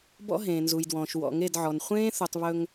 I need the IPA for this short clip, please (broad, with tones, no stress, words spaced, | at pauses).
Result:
bɔ̰˦ɦẽː˨nzu˨jdwɔ̃ː˨ʃ wɔ̰˨ŋe˦˨dʕɔ˨n χʷẽː˦θu˨tˤ βɵ˦ŋ